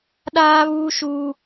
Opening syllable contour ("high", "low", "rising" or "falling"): high